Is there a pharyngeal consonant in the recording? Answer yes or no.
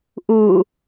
no